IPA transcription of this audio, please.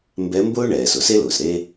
m b ɛ˧˥ m b ʊː˥ ɳ ɛː˩ s ʊ˦˨ s e˥ l ʊː˩ s ɾ e˥

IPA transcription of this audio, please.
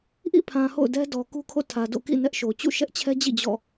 ʔ ḭ˦˨ pʰ ã˨ h o̰˦˨ ʊ̯ d ɛ˦ d ɔ˨ k u˦ kʰ o̰˦˨ tʰ ä˨ d o̰˦˨ k ḭ˦˨ n ɛ˦ ʔ ʃ o˨ t͡ɕ ṵ˦˨ ʃ ɛ˦ ʔ t͡ɕʰ ɛ˦ d͡ʑ ḭ˦˨ d͡ʑ ɔ̰˦˨

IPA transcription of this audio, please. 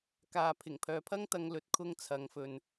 k aː˧ pʰ ɪ˨˩ ŋ pʰ œː˨˧ pʰ ɐ˥ ŋ t̪ ɐ˧ ŋ l ɵ˧ t̚ kʰ ʊ˥ ŋ t͡sʰ ɐ˨˧ ŋ f ɵ˨ n

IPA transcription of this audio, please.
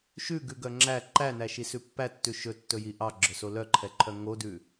ʃ ʉ ɡ ʉ ɡ œ ŋ͡ǁ æ ǃ æ n æ ʃ i s ʉ pː æ tː ʉ ʃ ɵ tː ɵ j i ʔ ɑ ɡ͡ǁ œ s o l œ ǃʰ ɛ ǃʰ œ ŋ o d ʉ

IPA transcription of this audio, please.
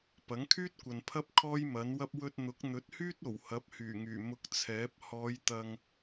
p ɐ˨˥ ŋ kʰ yː˥ t̚ kʷ ɐ˨ n pʰ ɐ˥ p̚ kʰ ɔː˥ j m ɐ˨˥ n w ɐ˥ p̚ w ɵ˧ t̚ n̪ ʊ˨˥ k̚ n̪ ɵ˨˥ t̚ h yː˥ t̚ o˨˩ w h ɐ˨˥ p̚ h yː˨˩ ŋ yː˨˩ m ʊ˧ k̚ t͡sʰ ɛː˨˥ p̚ h ɔː˨˧ j t̪ ɐ˧ ŋ

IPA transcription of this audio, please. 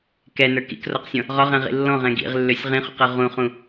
k ɛ n ə˞ k ḭ k r ɔ q sʲ ɔ̃ | ʁ ɒ ʁ ɛ̃ ʁ ḭ lː ɔ̃ ʁ ɛ̃ ɡ ḭ ʁ lː ø sʲ ʁ ĩ χ ṵ q ɤ ʁ ũ χ ũ

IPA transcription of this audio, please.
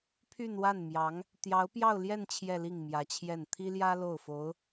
pʰ y˥˧ n w a˥˩ n m j ɑ˧˥ ŋ | t̪ j ɑ˧˥ ʊ̯ p j ɑ˥˧ ʊ̯ l j ɛ˥˧ n t͡ɕʰ j ɛ˥˧ l i˥˩ ŋ m j ä˧˥ t͡ɕʰ j ɛ˥˩ n t̪ʰ i˥ l j ä˥ l o˥˩ ʊ̯ f o˧˥ ʊ̯

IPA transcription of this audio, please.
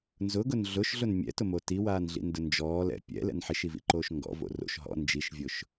n z ʊ ɡ ʊ n ɮ ʊ ʃ ɮ ʊ n mʲ ɛ̰ t ʊ m o t i w aː n ɮ ḭ n d ʊ n d͡ʒ ɔː l ɛ̰ pʲ ɛ̰ l ɛ̰ n ħ i ʃ i v ḭ ǃ oː ʃ ŋ ɡ ɔ̰ v o̰ r o̰ ʃ ɦ ɔ̰ n d͡ʒ i ʃ vʲ ʊː ʃ

